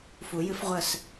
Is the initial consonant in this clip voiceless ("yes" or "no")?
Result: yes